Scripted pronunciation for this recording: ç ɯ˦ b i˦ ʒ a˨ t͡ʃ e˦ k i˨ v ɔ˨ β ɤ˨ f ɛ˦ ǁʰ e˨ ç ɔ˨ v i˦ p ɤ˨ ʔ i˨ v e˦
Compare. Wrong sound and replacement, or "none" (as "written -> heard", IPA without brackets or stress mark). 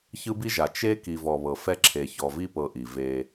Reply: none